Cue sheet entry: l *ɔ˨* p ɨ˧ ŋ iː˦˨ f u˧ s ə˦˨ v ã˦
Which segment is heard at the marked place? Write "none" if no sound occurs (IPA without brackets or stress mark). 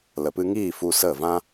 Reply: ə˨